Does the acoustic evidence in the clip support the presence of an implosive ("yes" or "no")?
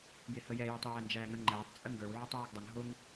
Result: no